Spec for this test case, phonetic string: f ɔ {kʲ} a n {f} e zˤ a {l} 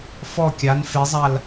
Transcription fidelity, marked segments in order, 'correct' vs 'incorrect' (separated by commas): correct, correct, correct